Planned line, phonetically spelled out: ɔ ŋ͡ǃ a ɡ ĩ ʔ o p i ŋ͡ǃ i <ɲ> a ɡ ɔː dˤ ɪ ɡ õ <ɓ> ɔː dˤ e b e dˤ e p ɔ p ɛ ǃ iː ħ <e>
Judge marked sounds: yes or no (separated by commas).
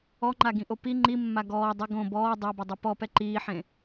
no, no, no